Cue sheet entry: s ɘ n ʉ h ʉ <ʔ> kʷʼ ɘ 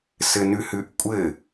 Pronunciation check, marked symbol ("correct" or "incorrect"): correct